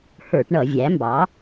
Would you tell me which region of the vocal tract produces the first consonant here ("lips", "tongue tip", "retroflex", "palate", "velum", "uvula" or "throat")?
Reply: throat